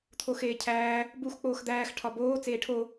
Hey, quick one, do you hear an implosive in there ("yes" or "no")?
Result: no